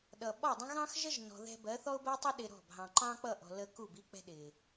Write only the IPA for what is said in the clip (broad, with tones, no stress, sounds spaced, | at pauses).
ɗ ʌ˨ ɓ ɒ˦˨ dˤ ə̃˦ ɣ ɑ̃˦ x ʒ ə˦ ʒ n ɔ̤˨ ð ɛ̤˧ b ɜ˨˦ θ ɔ˦ ʊ̯ b əː˦ tˤ ʌ˦ ɗ ɪ˧ ɾ ɔ̤˦˨ b ɦ ɑ̃˨ ǃ ɑ̃ː˦ k͡p ʌ˦˨ ʔ ɔ̤˨ l ə˧ k u˦˨ b i˦ k͡p ɛ̤˦ ɗ ɪː˨